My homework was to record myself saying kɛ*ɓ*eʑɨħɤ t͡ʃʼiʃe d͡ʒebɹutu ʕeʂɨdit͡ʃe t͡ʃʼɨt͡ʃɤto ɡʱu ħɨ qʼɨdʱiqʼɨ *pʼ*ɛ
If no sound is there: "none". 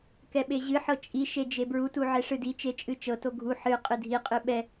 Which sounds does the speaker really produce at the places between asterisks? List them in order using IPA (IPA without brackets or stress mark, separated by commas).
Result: ɓ, ɓ